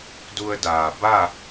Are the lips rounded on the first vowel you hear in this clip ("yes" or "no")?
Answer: yes